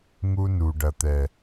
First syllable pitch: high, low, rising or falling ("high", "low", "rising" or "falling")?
high